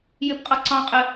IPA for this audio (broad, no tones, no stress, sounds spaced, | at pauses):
j ɪ p qʼ ʌ ǀ ɑ̃ qʼ ɪ